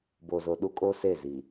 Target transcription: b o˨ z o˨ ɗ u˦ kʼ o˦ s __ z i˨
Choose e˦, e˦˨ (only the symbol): e˦˨